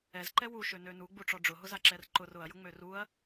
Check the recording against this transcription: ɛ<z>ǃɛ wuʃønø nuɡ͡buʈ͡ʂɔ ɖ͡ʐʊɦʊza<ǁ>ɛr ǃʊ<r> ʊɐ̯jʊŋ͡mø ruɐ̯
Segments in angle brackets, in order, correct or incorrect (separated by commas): correct, correct, correct